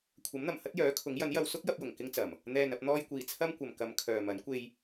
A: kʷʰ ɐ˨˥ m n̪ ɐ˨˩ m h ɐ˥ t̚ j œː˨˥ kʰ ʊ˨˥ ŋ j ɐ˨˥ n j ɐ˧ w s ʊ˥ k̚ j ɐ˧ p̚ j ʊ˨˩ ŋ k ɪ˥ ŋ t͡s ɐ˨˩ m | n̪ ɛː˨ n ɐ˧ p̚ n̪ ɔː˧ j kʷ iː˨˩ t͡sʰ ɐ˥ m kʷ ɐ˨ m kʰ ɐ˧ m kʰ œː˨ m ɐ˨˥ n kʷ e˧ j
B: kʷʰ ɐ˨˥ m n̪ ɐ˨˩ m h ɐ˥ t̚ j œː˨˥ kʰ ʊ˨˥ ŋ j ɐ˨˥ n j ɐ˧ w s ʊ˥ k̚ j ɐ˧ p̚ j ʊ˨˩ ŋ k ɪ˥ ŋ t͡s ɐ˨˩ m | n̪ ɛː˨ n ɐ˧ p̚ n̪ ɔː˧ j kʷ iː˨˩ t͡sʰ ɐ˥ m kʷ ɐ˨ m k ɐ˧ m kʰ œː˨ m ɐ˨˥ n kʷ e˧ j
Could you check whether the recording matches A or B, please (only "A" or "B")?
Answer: B